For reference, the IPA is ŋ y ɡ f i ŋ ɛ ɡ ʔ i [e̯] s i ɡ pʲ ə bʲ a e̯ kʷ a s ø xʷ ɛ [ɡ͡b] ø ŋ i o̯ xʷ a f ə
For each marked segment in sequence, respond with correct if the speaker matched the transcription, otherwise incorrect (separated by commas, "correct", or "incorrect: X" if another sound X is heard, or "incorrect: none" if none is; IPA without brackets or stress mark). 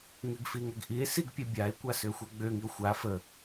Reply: correct, correct